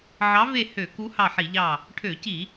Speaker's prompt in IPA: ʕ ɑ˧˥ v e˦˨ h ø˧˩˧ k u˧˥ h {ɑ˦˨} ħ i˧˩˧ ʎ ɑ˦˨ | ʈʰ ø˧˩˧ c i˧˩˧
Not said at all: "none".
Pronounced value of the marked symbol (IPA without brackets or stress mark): ɑ˦˨